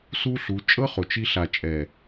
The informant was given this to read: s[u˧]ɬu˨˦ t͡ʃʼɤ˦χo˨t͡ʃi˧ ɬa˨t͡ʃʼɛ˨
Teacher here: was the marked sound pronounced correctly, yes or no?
no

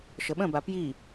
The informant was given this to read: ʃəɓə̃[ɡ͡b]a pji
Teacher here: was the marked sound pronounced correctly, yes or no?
no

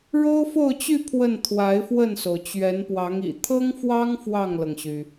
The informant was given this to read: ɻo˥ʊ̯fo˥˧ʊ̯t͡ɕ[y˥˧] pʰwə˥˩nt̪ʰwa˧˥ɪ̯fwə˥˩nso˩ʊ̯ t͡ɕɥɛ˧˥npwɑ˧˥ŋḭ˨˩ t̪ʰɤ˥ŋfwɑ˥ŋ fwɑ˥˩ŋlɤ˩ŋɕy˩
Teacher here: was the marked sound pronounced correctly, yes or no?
yes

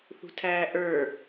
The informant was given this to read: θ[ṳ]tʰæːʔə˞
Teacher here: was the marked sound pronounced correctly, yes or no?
yes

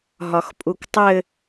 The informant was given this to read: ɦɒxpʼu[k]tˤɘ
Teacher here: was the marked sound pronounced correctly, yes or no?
yes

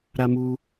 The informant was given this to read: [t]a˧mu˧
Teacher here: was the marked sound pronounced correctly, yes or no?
no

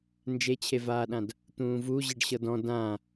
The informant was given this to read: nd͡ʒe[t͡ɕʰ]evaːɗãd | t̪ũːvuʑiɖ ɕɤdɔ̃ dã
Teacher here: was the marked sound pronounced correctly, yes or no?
yes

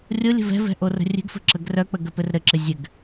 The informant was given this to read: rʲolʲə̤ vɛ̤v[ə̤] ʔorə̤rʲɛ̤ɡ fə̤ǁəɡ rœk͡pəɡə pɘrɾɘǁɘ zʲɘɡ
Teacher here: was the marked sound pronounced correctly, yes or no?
no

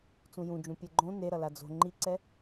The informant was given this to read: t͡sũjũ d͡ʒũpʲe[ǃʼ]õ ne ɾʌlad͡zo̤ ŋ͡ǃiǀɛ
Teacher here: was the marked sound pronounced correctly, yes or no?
no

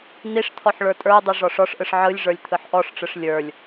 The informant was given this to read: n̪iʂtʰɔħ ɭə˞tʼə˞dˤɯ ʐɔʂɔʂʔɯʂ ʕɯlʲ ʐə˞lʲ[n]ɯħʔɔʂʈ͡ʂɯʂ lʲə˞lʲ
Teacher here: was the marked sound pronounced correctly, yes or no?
no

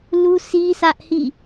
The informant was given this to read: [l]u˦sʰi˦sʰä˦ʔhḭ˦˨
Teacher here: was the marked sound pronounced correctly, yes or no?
yes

